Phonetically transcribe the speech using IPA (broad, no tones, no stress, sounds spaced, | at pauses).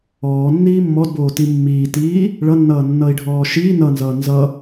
ɔː nː iː mː ɔ d b oː t i mː iː t iː | ɭ ʌ nː ʌː nː ʌ i̯ ɖʱ ɔː ʃ iː n ʌ n z ʌː n z ʌ